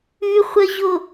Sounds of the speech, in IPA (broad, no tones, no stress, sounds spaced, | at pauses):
ʉ χʷ ə ʑ o